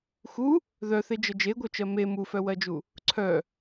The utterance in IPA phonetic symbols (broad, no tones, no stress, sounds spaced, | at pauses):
x u | ð œ θ e d͡ʒ ə d͡ʒ e ɡʷ œ t͡ʃ ɜ m e m u f œ w ɜ d͡ʒ u | ǀʰ œ